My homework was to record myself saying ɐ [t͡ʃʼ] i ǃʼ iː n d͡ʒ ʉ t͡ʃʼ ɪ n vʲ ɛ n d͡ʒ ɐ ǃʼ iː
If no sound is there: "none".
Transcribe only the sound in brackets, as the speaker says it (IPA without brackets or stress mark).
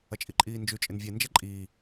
t͡ʃʼ